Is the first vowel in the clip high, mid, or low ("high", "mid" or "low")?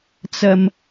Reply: low